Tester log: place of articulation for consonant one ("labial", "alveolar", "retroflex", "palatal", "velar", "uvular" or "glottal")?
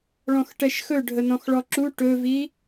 retroflex